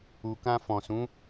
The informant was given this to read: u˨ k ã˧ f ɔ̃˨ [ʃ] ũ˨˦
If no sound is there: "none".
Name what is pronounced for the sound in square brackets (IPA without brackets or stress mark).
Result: s